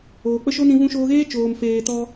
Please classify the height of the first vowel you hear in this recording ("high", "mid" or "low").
mid